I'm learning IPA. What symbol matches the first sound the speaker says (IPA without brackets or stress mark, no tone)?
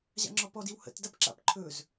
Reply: ʑ